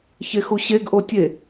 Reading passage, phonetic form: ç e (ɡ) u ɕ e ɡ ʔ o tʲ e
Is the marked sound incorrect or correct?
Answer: incorrect